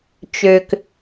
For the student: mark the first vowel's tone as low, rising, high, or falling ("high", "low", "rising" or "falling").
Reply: low